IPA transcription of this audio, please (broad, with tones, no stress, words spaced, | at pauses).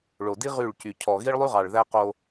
ɭo˨di˦ ʁy˦˨ɭcy˨ cʰɔ˨ɣi˦ɭlˠy˦ʁɑ˨ɭ ðæ˦qo˦